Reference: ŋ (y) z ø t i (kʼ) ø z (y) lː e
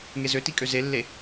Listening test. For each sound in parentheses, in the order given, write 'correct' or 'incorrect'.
incorrect: e, correct, incorrect: e

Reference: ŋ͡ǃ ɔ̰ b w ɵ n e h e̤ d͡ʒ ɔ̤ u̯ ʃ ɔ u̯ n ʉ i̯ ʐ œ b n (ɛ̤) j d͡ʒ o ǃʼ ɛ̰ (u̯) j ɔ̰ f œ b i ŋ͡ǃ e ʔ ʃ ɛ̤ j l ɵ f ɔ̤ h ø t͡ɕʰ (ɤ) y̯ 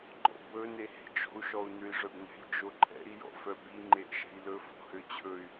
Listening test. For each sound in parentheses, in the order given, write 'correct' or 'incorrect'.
correct, incorrect: i̯, incorrect: ɵ

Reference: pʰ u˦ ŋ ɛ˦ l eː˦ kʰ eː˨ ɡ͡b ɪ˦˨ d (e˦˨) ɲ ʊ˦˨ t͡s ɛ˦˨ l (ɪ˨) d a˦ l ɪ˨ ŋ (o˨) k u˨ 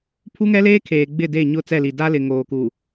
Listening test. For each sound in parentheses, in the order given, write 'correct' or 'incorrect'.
correct, incorrect: i˨, incorrect: oː˨

